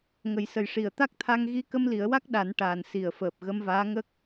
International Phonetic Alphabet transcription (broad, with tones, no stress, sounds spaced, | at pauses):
ŋ ə˨˩˦ j s ə˨˩ j ʂ i˨˩˨ ə̯ t̪ a˦˥ k̚ t̪ʰ a˧ ŋ ɣ i˧˥ k ə˧ m l i˨˩˦ ə̯ w a˦˥ k̚ ɗ a˨˩˦ n ʈ aː˨˩ n s i˨˩ ə̯ f əː˨˩ p̚ ɣ ə˧ m v aː˧˥ ŋ ə˦˥ k̚